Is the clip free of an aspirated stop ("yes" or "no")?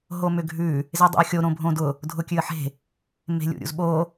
yes